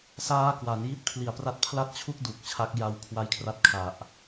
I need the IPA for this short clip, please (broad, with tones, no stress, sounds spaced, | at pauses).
s aː˦˥ k w a˩˦ n j i˦˥ t̚ pʰ l i˨˩ a̯ p r a˦˥ t̚ pʰ l a˥˩ t̚ t͡ɕʰ u˥˩ k̚ d u˨˩ k̚ t͡ɕʰ a˦˥ k̚ j a˧ w kʰ w a˦˥ j kʰ r a˦˥ t̚ kʰ a˨˩ ʔ